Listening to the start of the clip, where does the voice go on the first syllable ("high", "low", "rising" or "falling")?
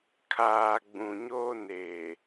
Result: low